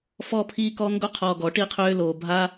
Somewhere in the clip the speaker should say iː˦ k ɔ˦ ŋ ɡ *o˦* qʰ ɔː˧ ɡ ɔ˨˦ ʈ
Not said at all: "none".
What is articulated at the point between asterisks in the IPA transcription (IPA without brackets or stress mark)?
o˦